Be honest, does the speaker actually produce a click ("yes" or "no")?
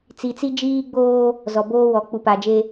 no